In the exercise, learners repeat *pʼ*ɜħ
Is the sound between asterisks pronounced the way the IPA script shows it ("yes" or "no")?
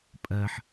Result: yes